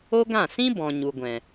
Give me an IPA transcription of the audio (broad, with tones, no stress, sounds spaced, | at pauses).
o˦ ɡ ã˦˨ s ĩ˦ b ɔ̃˨ ɲ u˨ ɡʷ ɛ̃˨